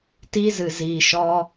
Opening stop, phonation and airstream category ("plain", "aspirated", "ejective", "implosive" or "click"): plain